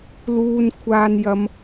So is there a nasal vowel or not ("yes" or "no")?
no